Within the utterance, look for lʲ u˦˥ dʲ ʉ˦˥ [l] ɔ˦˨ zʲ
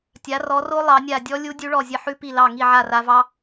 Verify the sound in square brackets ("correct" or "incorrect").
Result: incorrect